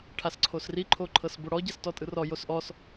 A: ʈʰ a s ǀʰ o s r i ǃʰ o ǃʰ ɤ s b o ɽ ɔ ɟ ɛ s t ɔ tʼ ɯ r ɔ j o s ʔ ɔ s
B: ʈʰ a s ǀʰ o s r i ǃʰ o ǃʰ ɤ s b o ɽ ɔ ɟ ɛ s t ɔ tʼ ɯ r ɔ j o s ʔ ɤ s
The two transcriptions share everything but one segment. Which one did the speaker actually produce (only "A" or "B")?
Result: A